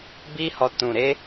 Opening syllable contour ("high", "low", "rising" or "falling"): high